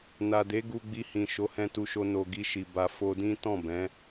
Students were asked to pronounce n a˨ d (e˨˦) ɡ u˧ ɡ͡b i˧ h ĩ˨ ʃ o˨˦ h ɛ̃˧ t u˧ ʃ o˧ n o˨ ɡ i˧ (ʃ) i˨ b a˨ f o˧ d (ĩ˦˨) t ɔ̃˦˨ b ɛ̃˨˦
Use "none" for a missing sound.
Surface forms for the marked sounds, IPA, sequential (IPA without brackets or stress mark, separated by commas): e˨˦, ʃ, ĩ˦